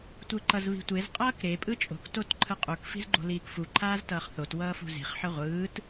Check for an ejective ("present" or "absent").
present